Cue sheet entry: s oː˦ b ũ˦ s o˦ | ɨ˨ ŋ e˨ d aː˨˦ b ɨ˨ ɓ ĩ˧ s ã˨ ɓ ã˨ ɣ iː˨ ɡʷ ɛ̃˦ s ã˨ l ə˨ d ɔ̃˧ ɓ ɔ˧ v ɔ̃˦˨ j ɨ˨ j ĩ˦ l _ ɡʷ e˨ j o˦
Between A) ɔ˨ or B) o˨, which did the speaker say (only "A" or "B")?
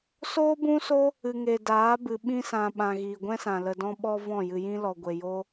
A